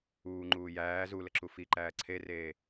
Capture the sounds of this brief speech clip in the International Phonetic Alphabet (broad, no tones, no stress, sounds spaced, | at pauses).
uː ŋ͡ǃ uː j æː z u l ə ǁ u f i ǃ æː ǀʰ e r eː